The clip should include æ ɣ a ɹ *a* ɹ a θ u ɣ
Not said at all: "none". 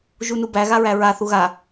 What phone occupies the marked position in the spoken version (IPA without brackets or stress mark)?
æ